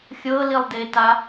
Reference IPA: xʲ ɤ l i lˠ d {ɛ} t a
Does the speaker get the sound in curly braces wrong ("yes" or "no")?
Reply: yes